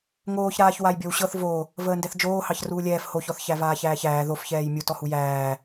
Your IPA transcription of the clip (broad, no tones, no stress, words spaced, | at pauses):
ŋoːçɾaːç wajbʲɔwɕɤθ vo | vəːndɛθd͡ʒoːhɑç ruːlʲɛːf hoçɔθ çævaːçæːçæː ðofçɛːj mʲu tɔhujæː